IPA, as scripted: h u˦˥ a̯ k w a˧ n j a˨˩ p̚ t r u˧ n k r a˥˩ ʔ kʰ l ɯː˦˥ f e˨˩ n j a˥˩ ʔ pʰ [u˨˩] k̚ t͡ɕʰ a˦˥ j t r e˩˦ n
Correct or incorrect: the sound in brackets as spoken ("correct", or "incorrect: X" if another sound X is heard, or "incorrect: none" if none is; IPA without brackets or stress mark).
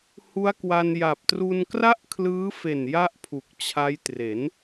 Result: correct